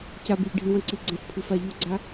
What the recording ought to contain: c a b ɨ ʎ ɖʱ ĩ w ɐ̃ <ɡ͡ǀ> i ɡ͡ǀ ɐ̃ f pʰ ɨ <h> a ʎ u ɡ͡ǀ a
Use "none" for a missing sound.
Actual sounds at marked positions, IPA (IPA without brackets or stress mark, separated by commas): ǀ, f